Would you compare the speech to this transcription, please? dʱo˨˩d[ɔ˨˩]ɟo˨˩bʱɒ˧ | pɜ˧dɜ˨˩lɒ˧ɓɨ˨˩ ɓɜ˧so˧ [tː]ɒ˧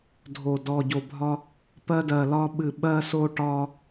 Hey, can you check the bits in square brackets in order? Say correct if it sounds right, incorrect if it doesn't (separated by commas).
correct, incorrect